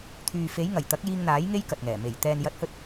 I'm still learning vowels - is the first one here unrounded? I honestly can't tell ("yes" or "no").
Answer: no